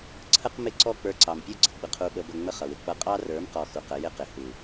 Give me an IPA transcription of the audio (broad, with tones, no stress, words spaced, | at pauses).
ǀʰə˦qmɪ˦˨ǀɔ˦ k͡pə˞˧ǀɑ˨mpʲɔ˦ɡ͡ǀə˨ ɡ͡bə˦qʰu˦ ɓə˧bə˧ ŋ͡mə˧ χʌ˨wɪ˧k͡pʌ˦ qʼɑ˦rə˞˨˦mqɔ˨ xu˨qə˧ jɪ˦qɪ˨ hu˨